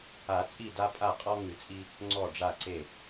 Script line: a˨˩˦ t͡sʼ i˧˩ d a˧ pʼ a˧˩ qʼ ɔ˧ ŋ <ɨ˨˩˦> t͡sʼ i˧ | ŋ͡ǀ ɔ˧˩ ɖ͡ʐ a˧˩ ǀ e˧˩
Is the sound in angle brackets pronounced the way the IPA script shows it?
yes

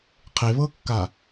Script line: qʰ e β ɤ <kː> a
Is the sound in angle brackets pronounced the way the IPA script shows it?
yes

